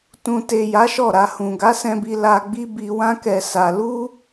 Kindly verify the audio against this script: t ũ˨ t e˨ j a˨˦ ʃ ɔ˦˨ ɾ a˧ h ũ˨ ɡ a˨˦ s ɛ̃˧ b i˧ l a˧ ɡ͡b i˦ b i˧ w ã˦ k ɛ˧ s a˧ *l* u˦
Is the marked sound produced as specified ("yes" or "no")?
yes